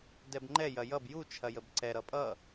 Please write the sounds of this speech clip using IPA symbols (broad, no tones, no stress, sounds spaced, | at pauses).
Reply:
d ɛ b ŋ͡ǃ ɛ j ɐ j ʌ b j u t͡ʃʰ ɐ j ə b ǀ ɛ ɾ ʌ pʼ ʌ